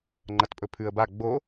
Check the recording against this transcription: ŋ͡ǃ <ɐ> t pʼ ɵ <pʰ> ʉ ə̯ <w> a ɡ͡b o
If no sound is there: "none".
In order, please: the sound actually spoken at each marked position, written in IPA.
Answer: ɐ, pʰ, b

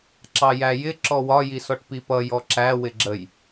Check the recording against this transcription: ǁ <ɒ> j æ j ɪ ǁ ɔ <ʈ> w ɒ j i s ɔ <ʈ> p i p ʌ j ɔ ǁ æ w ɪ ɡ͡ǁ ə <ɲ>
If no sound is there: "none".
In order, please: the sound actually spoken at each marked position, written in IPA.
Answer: ɑ, none, ʈ, j

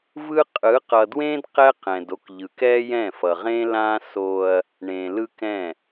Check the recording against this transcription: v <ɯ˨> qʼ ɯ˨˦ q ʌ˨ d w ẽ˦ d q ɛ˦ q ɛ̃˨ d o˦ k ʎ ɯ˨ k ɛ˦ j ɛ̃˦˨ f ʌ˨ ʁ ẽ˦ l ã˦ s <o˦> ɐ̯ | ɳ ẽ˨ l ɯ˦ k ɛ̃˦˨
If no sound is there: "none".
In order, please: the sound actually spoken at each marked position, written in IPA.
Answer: ɯ˦, o˦

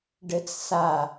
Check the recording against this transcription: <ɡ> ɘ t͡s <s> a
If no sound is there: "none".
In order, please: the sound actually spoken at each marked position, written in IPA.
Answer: ɖ, s

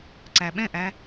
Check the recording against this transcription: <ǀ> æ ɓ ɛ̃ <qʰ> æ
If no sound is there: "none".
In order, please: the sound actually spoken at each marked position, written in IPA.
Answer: ǀ, ʔ

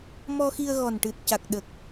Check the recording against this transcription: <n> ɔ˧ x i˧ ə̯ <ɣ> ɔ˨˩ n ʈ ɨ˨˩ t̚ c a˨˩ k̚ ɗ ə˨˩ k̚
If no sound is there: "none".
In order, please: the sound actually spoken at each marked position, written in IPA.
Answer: m, ɣ

